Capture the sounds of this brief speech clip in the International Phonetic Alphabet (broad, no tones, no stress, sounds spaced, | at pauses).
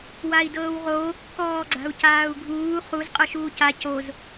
w a i̯ d ɤː w ʁ oː kː ɔː ɡ͡ǀ a̤ u̯ c aː u̯ ɡʱ uː χ u z qʼ ɤ ʃ uː c a c o z